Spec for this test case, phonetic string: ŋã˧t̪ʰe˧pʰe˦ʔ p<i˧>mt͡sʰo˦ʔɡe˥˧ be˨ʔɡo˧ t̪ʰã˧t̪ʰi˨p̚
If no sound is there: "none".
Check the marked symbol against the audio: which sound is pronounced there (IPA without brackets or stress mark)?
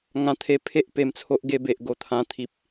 e˧